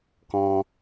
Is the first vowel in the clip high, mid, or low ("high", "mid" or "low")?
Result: mid